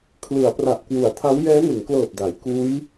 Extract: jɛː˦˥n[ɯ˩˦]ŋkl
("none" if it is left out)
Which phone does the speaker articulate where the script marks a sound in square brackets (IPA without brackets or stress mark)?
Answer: ɯ˩˦